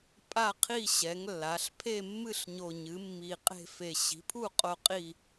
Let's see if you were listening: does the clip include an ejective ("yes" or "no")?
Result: yes